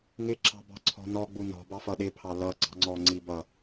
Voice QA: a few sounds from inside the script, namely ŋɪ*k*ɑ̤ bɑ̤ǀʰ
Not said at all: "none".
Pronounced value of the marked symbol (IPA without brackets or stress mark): ǁ